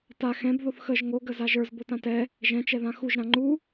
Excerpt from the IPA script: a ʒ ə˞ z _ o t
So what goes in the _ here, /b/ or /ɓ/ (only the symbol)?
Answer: b